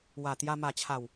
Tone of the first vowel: low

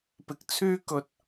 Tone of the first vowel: rising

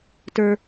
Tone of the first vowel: high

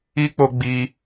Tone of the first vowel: high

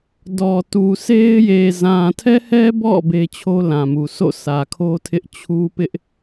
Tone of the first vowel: low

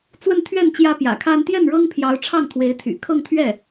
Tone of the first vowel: falling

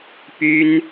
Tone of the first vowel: high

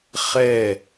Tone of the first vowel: falling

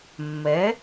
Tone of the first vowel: rising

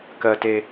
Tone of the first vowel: low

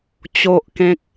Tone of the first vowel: low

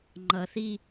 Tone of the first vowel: low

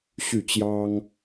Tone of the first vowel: falling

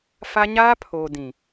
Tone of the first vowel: high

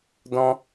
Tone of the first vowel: high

